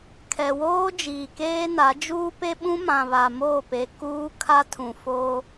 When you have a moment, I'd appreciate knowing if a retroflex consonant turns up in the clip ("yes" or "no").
no